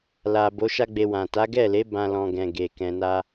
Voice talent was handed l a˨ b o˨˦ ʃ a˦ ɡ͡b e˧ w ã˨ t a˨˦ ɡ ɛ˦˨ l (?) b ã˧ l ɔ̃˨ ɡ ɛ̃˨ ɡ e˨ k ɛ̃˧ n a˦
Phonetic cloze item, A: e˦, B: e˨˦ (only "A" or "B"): B